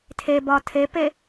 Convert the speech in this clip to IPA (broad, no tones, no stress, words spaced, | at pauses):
tʰebɒ tʰepe